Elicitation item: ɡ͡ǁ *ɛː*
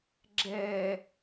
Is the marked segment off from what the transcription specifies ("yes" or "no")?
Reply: no